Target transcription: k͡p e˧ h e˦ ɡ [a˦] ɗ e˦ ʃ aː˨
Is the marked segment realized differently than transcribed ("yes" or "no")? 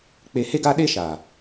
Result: no